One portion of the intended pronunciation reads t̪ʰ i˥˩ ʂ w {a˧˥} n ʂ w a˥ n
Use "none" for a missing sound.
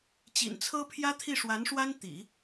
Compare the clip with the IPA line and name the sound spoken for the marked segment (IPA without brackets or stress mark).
a˧˥